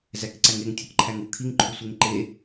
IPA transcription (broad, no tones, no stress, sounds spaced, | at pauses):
z æ k ǀ æ ŋ e ŋ tʲ ɒ k ǃʰ æ ŋ u kʰ i ŋ ǃʰ u sʷ e ŋ ǃ e